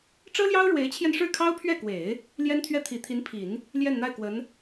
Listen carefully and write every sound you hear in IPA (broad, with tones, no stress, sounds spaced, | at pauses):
ʈ͡ʂ ɤ˥ l j ɑ˥ ʊ̯ ɻ w e˧˥ ɪ̯ t͡ɕʰ j ɛ˧ n ʂ ɻ̩˥˩ kʰ ɑ˥ ʊ̯ pʰ ɥ ɛ˥˩ k w e˨˩˦ ɪ̯ | l j ɛ˥ n t̪ʰ ɥ ɛ˥˩ t̪ʰ i˨˩ t̪ʰ i˧˥ n pʰ i˨˩˦ n | l j ɛ˥˧ n n̪ a˥˩ ɪ̯ k w ə˧˥ n